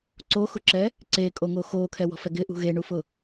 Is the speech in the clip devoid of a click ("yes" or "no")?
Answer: no